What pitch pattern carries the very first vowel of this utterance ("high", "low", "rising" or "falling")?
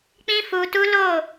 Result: high